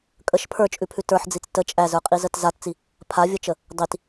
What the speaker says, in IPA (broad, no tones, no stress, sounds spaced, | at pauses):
kʼ ə ʃ pʰ ə˞ t͡ʃʼ ʉ pʰ ʉ t ə˞ ħ d͡z i t͡s t ə t͡ʃʼ æ z ə˞ qʼ i z ə t z a t t͡s i | pʰ a vʲ ə t͡ʃ ə | dˤ i t